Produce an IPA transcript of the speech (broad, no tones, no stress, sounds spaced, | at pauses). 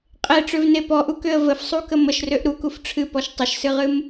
qʼ e ʈ͡ʂ ø v n e p ɔ ʔ u k ø ə̯ v ə f sˤ u k ə m ə ʃ r ø ʔ ɾ u k u f ʈ͡ʂʰ ɨ p ɔ ʃ tˤ ə ʃ s ɨ ʁ ɨ m